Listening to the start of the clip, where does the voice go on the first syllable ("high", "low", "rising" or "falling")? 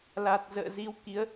low